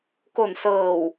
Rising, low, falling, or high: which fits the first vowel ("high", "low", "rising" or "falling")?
low